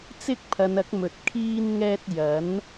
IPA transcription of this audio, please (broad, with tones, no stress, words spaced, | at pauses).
t͡sɪ˥k̚pʰɐ˨˧nɐ˨˥k̚mɵ˨t̚ kʰiː˧nŋɛː˧t̚ jɐ˨˥n